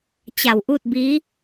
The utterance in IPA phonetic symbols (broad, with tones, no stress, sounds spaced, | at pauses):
t͡ɕ a˧˩ w ʔ u˥˨ t̚ b i˧˥